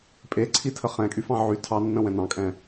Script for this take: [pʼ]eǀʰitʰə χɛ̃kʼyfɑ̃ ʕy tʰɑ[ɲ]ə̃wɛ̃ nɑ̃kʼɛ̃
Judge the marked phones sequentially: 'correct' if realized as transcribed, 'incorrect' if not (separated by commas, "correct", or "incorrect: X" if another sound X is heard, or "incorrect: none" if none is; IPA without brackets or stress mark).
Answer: correct, incorrect: nː